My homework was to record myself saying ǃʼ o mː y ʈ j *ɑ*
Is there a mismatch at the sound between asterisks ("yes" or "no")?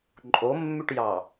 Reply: no